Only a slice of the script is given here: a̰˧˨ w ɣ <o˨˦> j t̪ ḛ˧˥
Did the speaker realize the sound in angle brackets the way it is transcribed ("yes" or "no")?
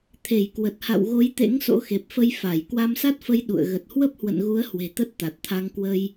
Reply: yes